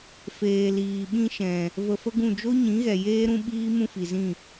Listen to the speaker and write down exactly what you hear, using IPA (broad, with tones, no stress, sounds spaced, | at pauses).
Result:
f eː˨ l iː˨ ɓ ĩ˧ ʃ ɛ̃˨ | v ə˧ f ə˦ ɡ ũ˦˨ d͡ʒ o˦ ɲ ĩ˨˦ ɣ ɛ˨ j eː˦ ɾ ũ˦ ɓ iː˦ m ũ˦ f i˨ z ĩ˦˨